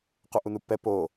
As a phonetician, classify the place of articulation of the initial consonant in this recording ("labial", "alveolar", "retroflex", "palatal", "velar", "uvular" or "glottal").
uvular